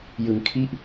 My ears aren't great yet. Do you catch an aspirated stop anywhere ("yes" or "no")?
yes